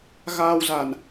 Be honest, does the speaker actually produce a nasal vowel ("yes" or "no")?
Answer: no